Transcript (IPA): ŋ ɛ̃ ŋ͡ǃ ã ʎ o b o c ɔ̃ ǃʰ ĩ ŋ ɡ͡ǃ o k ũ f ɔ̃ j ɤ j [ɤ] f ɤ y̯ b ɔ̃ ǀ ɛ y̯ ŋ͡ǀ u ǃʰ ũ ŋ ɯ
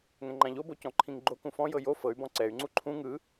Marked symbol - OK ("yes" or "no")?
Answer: no